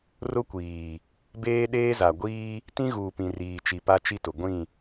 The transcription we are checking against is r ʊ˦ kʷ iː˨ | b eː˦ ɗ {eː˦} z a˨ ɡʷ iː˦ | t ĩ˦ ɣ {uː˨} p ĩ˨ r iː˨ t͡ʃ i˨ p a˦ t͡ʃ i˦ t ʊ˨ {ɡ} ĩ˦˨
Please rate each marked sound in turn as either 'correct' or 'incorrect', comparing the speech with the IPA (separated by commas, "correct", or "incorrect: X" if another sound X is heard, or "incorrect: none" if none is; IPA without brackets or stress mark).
correct, correct, incorrect: ɡʷ